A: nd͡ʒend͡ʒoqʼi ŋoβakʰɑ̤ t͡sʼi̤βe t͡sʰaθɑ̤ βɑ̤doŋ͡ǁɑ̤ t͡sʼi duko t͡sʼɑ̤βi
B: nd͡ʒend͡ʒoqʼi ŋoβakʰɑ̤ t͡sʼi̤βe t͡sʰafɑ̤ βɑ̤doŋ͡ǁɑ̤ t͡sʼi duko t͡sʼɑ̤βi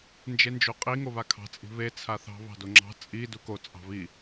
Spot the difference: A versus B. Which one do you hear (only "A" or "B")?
A